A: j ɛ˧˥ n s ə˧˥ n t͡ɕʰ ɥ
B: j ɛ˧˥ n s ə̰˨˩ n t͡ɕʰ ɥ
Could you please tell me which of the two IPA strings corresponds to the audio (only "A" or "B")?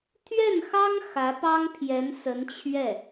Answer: A